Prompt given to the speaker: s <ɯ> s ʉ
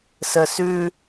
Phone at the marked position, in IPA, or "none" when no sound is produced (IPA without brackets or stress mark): ə